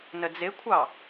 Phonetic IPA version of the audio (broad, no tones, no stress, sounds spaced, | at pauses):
n ə d͡z ɪ kʷʰ ɑ